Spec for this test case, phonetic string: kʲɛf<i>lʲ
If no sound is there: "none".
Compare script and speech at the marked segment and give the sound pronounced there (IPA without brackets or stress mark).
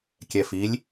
i